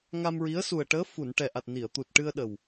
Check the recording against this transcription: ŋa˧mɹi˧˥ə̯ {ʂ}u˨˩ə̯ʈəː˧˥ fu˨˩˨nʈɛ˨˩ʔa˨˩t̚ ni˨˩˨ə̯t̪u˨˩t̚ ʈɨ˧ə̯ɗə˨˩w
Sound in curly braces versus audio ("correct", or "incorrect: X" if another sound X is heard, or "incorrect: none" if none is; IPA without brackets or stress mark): incorrect: s